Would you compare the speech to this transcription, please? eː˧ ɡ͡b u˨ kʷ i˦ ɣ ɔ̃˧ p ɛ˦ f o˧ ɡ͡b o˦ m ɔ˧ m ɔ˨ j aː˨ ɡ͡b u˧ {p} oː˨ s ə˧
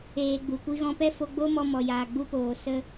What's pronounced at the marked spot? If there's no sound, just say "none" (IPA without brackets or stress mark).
p